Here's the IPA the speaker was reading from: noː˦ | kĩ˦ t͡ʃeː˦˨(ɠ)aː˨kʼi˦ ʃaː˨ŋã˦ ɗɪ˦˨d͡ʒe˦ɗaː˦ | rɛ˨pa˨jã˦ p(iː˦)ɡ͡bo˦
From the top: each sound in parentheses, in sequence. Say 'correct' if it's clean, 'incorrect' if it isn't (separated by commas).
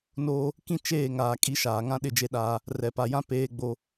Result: incorrect, incorrect